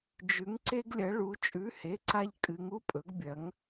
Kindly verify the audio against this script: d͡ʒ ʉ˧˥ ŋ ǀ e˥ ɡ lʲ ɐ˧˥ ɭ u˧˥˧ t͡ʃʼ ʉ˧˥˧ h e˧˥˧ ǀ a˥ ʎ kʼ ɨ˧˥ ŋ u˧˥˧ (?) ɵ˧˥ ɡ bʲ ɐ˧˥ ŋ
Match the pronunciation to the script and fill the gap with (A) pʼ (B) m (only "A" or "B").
A